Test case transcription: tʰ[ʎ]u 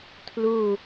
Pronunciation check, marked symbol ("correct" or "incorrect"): incorrect